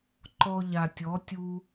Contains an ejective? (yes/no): no